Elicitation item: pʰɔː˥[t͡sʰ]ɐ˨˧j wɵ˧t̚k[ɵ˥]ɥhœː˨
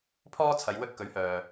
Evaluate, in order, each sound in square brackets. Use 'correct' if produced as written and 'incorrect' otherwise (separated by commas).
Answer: correct, incorrect